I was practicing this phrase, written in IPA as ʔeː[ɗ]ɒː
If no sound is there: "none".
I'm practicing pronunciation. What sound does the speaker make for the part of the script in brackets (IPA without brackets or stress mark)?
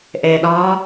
ɗ